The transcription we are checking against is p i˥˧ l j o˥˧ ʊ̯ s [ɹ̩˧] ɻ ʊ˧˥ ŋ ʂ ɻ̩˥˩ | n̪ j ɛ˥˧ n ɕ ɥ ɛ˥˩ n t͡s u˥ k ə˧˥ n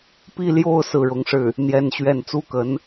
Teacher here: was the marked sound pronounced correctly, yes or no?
no